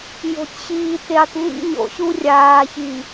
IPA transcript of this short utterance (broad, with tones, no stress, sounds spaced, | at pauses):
j o̤˨ tʲ ɕ iː˨ t e˨ tˤ ŋ ḭ˦ ɲ o̰˨ ɕ u˦ rʲ aː˨ ç i˨